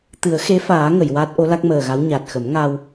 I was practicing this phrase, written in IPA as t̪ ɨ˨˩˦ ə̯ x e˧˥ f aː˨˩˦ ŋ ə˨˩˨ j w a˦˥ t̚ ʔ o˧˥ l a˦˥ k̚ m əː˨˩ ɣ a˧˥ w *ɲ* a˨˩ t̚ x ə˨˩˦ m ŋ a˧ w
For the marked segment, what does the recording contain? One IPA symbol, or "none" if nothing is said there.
ɲ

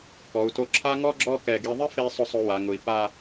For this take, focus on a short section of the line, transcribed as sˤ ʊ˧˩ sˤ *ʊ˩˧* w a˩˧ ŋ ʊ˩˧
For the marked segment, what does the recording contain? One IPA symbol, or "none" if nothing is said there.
ʊ˩˧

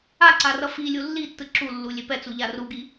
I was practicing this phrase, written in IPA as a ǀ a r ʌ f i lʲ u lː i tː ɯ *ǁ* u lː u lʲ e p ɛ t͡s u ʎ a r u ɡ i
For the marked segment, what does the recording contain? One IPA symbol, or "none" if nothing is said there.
ǁ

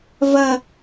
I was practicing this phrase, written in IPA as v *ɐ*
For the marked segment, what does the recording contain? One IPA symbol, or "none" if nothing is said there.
ɐ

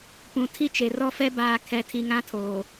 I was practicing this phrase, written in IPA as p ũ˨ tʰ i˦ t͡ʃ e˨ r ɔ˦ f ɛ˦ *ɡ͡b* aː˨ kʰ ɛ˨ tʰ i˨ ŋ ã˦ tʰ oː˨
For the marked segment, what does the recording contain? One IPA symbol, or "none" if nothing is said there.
b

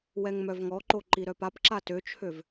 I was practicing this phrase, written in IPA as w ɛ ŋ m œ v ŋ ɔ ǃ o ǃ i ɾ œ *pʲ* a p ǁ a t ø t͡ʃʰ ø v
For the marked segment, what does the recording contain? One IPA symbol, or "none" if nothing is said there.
p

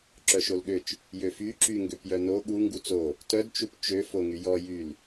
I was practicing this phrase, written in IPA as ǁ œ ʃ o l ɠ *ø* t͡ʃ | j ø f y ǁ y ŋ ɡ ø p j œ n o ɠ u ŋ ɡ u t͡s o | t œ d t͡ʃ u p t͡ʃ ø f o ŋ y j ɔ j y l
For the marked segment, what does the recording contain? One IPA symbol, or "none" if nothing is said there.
ø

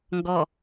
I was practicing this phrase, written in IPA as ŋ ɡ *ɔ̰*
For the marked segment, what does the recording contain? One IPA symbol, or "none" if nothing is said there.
ɔ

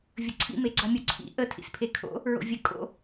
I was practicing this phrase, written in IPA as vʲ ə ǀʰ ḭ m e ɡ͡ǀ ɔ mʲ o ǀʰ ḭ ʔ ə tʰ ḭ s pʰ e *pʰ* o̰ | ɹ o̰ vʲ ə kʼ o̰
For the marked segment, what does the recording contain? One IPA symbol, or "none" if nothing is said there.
kʰ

